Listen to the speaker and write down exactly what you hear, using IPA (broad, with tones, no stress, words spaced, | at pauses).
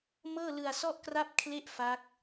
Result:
mɤː˥˩lɯ˧a̯sɔ˥˩ʔkra˥˩p̚ kʰle˥˩ʔfa˦˥k̚